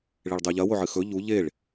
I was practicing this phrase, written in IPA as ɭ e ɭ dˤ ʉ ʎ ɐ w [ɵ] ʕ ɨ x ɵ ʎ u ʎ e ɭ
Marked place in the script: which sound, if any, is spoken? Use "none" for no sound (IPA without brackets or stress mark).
o